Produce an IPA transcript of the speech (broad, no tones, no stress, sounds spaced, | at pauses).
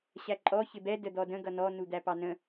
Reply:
ɕ æ ǃʼ ɔ ç ɪ b ɛ d ə d̪ ɔ d ə̃ ɡ ʌ n ɔ n u d̪ æ p ɑ n ə̃